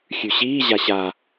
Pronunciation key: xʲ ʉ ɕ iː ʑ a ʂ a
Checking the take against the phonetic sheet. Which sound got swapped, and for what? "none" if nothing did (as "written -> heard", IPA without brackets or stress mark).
ʂ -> ɕ